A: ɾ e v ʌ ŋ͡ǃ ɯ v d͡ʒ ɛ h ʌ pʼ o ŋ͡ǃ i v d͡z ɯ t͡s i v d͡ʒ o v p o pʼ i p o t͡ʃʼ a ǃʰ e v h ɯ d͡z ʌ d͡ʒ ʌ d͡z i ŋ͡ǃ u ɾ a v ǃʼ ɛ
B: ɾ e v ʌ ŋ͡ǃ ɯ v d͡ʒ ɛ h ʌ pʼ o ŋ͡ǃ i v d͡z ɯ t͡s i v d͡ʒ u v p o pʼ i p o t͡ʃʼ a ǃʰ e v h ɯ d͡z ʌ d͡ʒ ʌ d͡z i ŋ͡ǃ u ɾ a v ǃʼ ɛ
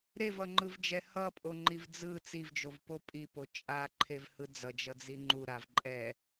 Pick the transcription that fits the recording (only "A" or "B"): A